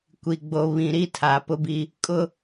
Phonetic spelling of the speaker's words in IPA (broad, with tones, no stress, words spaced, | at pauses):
kʷi˨ɡ͡bo˨ βĩ˨ɾi˦tʰa˨ pʊ˦bi˦ | kʼʊ˦